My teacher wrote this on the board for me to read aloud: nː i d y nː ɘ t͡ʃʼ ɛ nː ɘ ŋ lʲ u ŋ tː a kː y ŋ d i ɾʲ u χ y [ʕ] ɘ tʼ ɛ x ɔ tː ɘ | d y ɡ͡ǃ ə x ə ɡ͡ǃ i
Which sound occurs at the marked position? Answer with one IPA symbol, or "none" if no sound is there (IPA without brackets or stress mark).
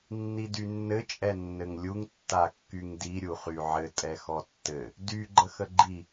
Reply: ʕ